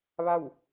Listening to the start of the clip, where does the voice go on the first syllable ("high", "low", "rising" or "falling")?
falling